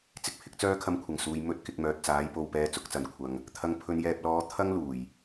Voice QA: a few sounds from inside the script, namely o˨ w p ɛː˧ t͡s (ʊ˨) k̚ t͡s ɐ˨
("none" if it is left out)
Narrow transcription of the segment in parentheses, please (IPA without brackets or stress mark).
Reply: ʊ˨˥